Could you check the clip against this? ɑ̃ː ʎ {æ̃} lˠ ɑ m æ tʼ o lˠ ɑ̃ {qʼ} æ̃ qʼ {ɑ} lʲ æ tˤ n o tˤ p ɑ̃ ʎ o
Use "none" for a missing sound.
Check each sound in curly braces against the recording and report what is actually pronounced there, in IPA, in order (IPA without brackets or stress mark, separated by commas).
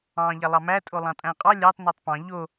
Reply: æ, tʼ, ɑ